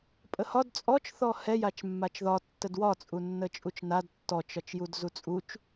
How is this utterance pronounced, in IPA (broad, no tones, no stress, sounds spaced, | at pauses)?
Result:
pʼ ə h ɒ d t͡sʼ ɔ t͡ʃ θ ɔ h ɛ j a t͡ʃ mː a t͡ʃ ð ɒ tː ə d w ɒ t͡sʼ u nː ə t͡ʃʼ u t͡ʃ n a d tː ɔ t͡ʃ ɒ t͡ʃ j u d z u t͡sʼ u t͡ʃ